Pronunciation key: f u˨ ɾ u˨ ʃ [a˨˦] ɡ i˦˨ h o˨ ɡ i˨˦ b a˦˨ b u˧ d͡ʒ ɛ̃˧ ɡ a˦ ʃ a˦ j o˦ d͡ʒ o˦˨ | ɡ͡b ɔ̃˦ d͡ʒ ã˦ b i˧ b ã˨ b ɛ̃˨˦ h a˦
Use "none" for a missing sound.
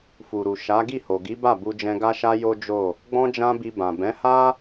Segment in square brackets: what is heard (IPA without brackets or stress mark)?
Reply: a˨˦